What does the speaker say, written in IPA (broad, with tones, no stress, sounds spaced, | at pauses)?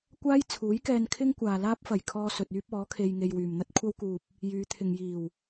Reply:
kʷ aː˥ j t͡sʰ uː˨˥ j k ɛː˧ n kʰ ɪ˥ ŋ kʷ aː˨ l aː˥ p̚ f ɐ˨˩ j kʰ ɔː˧ s ɵ˨ t̚ yː˥ p̚ ɔː˨˥ kʰ e˧ j ŋ e˧ j w yː˨ m n̪ ɐ˥ t̚ kʷʰ ɐ˥ w k uː˨ p̚ | j yː˨˧ t̪ʰ ɪ˨ ŋ j iː˨˩ w